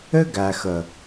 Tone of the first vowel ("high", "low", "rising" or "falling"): high